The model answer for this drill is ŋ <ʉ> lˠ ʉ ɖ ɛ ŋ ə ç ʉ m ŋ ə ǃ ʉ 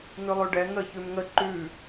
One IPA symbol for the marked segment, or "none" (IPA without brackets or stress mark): ʉ